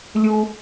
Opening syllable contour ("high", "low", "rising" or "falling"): high